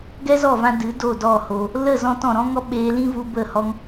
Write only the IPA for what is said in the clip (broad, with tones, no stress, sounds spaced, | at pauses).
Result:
ɡ ɛ˦ z ɔ˦˨ v ã˧ d ɨ˨˦ d o˦˨ d ɔ˦˨ h o˧ | l ə˦˨ z ɔ̃˧ t ɔ̃˨ ɾ ɔ̃˦ ŋ ɔ˦ ɓ eː˧ l ĩ˦ v u˧ b ə˦˨ h ɔ˦ ŋ